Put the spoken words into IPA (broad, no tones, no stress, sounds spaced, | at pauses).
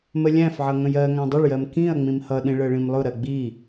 m ə lʲ æ̃ f ʕ ʌ ŋ ə̃ j ɜ ŋ æ̃ dˤ ə ɭ j ɜ m k ĩ ɐ̯ ŋ͡m ĩ m h ʌ ɗ ĩ ɭ ɜ ɭ ĩ m lˠ ʊ ɾ ɜ ɡ͡b i